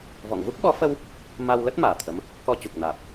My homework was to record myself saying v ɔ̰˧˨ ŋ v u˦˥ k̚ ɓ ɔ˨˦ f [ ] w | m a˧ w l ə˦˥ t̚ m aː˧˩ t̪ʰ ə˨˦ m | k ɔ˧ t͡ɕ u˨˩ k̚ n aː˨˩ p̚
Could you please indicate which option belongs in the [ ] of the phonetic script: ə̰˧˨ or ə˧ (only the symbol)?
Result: ə˧